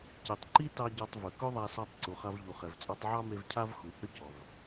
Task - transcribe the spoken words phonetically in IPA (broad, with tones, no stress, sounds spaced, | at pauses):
c e˩ tˤ ǃ i˥ t ɑ˧ ɟ ɔ˧ tˤ v ɵ˩ k ɵ˥ ðˤ a˧ s ɔ˧ tˤ ǀ u˩ χ a˧ v ʎ u˩ χ ɛ˩ v t͡sʼ ɔ˧ tˤ ʕ ɑ˥ m e˧ v cʰ a˥ v x u˩ h ʏ˥ c ɔ˩ v